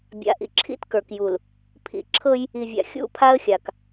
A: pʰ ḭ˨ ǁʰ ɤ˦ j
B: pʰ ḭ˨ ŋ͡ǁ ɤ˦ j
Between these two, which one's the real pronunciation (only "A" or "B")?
A